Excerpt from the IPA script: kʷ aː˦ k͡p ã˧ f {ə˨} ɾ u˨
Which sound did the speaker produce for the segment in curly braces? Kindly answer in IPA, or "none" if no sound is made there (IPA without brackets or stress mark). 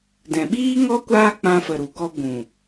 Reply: ə˨